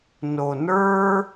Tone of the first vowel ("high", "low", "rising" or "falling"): low